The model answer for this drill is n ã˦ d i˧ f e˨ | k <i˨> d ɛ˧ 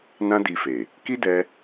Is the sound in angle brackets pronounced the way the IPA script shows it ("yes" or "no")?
no